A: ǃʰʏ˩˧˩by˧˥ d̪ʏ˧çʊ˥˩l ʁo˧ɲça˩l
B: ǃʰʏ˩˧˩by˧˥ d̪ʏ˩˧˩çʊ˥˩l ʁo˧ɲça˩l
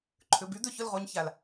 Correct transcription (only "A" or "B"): B